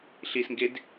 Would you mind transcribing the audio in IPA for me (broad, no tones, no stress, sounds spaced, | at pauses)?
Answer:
ɬ i s ŋ ɡ e d